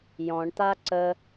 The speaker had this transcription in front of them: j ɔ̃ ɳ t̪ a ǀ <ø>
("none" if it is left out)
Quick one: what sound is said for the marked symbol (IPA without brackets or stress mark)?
ə